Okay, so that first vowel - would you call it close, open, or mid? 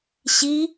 close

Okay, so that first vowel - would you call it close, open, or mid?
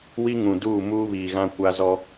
close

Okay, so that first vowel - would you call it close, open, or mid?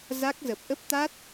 open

